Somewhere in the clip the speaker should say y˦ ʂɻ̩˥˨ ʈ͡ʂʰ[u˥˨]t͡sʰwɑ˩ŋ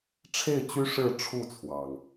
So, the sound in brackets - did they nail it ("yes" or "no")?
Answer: yes